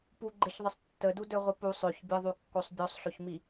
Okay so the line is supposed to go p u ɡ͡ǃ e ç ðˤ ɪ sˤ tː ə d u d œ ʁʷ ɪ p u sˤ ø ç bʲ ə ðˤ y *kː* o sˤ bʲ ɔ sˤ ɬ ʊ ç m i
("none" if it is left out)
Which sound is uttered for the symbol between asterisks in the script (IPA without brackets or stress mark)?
kː